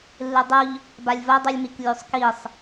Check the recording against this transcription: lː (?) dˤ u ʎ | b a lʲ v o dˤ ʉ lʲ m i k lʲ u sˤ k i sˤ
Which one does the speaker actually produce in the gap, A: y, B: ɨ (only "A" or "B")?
B